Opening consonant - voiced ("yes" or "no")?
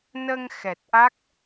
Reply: yes